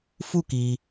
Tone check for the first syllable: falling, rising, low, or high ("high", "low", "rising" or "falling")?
falling